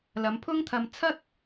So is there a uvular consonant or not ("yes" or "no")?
no